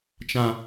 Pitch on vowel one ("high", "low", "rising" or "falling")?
low